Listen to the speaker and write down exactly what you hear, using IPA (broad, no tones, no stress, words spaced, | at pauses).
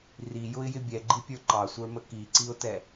rijʊɪ̯jɪ bʲɛɡ͡ǃipʲə˞ ǃɑsʷə˞mə kiǀiʊ̯tɛ